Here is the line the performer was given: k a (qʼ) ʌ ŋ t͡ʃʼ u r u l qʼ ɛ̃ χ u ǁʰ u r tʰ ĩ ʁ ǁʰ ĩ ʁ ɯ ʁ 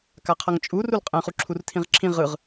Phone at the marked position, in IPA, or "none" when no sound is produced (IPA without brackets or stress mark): qʰ